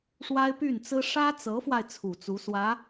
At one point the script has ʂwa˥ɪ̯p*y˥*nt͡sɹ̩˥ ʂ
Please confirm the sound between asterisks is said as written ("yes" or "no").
no